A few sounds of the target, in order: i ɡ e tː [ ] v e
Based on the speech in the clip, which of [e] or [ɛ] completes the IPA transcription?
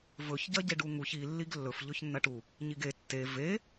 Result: e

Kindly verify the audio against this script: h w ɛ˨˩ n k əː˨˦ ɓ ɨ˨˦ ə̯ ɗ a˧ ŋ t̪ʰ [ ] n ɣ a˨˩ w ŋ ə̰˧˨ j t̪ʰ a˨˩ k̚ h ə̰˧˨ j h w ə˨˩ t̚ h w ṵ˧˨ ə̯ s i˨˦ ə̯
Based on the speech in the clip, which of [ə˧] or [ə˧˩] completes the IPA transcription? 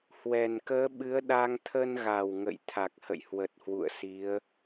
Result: ə˧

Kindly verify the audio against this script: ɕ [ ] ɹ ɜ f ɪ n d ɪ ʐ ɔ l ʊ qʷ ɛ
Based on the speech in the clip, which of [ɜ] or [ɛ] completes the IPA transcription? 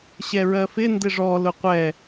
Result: ɛ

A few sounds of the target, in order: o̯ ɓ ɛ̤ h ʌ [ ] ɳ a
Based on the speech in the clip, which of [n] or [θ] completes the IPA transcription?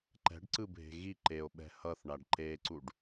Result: θ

